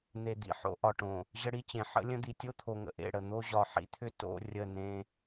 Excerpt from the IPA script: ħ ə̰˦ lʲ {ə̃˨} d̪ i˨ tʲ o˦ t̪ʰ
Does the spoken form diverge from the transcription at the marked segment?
yes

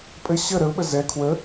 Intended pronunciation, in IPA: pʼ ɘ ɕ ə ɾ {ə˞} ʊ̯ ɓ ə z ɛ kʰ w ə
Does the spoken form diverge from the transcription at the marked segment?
yes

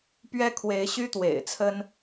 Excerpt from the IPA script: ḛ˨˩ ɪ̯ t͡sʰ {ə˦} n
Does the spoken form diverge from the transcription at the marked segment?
no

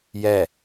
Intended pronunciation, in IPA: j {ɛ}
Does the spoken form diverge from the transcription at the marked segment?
no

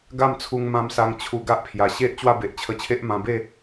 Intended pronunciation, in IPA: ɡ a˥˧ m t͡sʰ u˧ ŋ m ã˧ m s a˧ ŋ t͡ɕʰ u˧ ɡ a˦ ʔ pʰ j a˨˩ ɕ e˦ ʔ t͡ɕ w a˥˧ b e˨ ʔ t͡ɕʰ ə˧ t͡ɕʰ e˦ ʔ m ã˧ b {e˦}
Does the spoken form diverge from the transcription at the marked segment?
yes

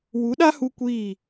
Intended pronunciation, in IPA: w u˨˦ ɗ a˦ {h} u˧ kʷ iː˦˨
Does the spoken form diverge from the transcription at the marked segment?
no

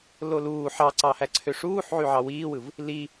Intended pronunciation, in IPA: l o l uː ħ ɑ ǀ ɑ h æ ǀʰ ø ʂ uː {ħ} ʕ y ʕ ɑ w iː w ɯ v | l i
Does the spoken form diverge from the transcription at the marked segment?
no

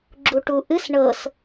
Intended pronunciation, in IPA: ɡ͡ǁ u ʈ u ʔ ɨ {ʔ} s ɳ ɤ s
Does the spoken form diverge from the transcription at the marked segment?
yes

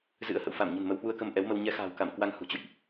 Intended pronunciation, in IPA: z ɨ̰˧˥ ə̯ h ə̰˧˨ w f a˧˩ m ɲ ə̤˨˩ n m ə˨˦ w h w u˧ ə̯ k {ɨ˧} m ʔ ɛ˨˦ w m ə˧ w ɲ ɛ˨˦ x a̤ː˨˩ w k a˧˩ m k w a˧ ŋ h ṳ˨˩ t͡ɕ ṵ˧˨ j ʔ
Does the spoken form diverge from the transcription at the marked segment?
yes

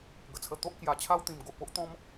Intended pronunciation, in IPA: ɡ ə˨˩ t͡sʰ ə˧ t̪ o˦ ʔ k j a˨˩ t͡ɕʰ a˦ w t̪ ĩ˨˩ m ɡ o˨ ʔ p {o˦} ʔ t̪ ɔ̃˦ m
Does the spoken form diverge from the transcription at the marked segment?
no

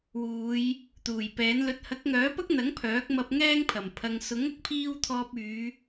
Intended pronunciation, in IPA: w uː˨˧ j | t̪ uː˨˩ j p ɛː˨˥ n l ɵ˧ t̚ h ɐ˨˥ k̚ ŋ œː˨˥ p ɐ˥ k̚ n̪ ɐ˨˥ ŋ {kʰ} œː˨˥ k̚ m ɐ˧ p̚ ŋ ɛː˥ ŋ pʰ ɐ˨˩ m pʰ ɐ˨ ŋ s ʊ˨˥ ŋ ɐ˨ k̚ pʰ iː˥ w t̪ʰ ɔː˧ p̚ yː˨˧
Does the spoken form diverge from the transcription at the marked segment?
yes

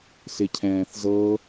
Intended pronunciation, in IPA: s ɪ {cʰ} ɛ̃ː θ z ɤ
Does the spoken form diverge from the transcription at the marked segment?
no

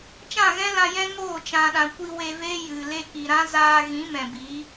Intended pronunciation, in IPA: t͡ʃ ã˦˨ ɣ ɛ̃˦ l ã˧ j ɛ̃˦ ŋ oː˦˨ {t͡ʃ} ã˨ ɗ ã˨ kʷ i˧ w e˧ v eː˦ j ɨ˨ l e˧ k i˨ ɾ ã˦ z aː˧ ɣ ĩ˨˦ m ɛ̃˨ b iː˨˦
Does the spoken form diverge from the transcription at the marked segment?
no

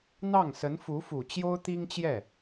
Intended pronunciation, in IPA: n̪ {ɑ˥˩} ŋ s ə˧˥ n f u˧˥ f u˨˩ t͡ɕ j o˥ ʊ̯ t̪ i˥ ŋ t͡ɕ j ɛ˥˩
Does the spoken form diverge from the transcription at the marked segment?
no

